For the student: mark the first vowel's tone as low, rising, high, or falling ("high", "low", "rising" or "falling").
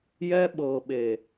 high